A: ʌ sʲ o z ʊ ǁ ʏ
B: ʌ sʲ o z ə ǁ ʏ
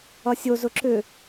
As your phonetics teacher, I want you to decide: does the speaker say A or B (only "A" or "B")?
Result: A